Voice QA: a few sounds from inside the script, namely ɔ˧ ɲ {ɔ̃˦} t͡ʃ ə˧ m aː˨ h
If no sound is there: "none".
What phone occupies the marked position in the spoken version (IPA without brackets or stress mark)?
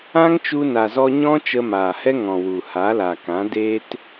ɔ̃˦